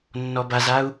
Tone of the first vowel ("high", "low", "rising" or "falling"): low